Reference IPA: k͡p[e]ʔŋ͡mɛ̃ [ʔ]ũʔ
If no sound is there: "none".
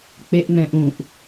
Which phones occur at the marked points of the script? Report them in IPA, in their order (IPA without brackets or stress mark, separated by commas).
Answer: e, ʔ